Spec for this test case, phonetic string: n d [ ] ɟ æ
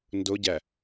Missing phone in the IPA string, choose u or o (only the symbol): o